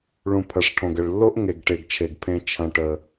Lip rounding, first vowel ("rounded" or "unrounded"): rounded